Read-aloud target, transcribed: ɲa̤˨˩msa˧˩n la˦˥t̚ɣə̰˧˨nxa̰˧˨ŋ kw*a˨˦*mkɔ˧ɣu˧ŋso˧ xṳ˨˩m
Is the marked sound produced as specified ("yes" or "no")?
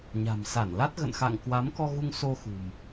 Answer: yes